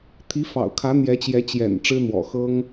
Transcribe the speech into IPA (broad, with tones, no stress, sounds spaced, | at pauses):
t̪ʰ i˧˥ f ɑ̰˨˩ ʊ̯ kʰ ä˧˥ n̪ j ɛ˧˥ t͡ɕ j ɛ˧˥ t͡ɕ j ɛ̰˨˩ n ʈ͡ʂ ɻ̩˥ n̪ w ɔ̰˨˩ x ɤ˥ ŋ